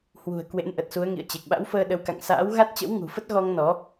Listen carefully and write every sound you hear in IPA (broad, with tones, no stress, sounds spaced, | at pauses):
h w ṳ˨˩ ə̯ k w ḛ˧˥ n ʔ ə˨˩ t̚ s u˨˦ ə̯ ŋ ḭ˧˨ ə̯ t͡ɕ e˨˩ k̚ ɓ a̰˧˥ w f əː˧ ɗ ə˨˦ w k a̰˧˨ ŋ s a̰ː˧˥ w ɣ a˦˥ t̚ t͡ɕ ə̰˧˥ w ŋ ṳ˨˩ f ə˦˥ t̚ ɣ ɔ˧ ŋ n ɔ˨˦